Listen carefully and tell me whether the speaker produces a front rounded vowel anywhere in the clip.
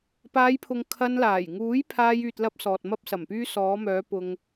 yes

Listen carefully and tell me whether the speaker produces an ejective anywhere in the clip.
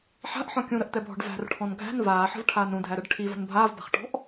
no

